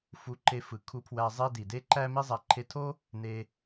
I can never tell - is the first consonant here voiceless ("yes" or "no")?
yes